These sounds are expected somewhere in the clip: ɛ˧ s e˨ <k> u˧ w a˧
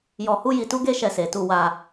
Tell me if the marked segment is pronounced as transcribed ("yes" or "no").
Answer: no